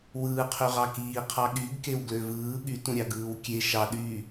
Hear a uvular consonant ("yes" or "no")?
yes